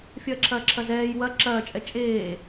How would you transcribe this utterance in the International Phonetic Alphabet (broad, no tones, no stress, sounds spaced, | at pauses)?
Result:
fʲ ɐː ǁʰ ɐː ǁʰ ɐ z ɛː j w ɐ ǁ ɐː t͡ʃʼ ɛ t͡ʃʼ eː